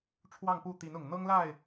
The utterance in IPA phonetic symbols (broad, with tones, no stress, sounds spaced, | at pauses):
ʈ͡ʂʰ w ɑ˥˨ ŋ p u˥˨ t̪ i˨˦ n ʊ˨˩ ŋ n̪ ɤ˦ ŋ l a˥˨ ɪ̯